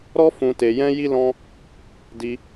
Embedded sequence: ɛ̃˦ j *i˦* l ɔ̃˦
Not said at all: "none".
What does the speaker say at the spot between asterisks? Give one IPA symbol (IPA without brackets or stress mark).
i˦